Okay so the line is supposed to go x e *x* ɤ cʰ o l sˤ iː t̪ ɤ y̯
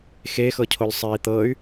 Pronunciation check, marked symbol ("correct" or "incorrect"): correct